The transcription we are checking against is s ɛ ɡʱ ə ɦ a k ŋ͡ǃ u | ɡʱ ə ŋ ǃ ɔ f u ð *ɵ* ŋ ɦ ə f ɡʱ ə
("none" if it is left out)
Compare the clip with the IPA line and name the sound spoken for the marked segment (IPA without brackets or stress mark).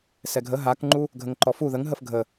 ə